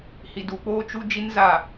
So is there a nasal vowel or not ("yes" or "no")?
no